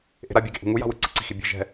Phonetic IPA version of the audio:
ʔ e̤ ɾ a bʲ a ɡ e̤ ʔ ṳ ŋ u j a̤ w ɯ ǀ ɯ ǀ i̤ x i bʲ e̤ ʒ ɛ̤

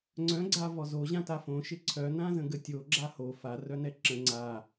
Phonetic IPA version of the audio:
ŋ͡ǀ œ̃ ɡ͡ǀ a v ɔ z o ʑ ã t a f õ ʃ ɪ ǀʰ œ n ã z ə̃ ɡ ə tʲ o ɡ͡ǁ a h o f a r œ n ɛ ǁ ə̃ ŋ͡ǀ a

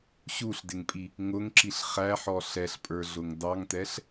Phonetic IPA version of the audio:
ɕ u ɬ d ɪ ŋ pʼ i | ŋ ʊ ŋ ǁ i ɬ χ æ ħ ɔ ɬ ɛ ɬ pʼ ə˞ ɮ ʊ ŋ d ɑ ŋ t ɛ ɬ

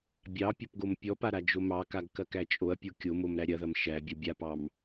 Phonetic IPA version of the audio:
bʲ ɑ pʲ ɐ p ɡ o m pʲ ɔ p a ɾ a d͡ʒ o m ɑ k a ɡ k ɐ k æ t͡ʃʼ o ɐ̯ pʲ o kʲ o m o m ɾ æ ɾʲ ɐ ð ɐ m ʃ æ bʲ ɐ bʲ a p ɑ m

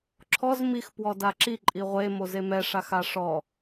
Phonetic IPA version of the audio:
ǁʰ ɔ z m i x p w ɔ d a ǁ i ǃʼ i ʁʷ e m o z e m ɛ ʂ a x a ʂ ɔ

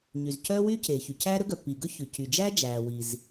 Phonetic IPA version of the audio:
ɲ y˩ z cʰ œː˥ w yː˥ cʰ eː˩ ç y˩ cʰ æː˥ ɾ ɵ˥ ɡ œ˩ pː iː˩ ɡ ɵ˥ ç ʉ˩ cʰ y˩ d͡ʒ æ˥ d͡ʒ æː˩ w i˩ z

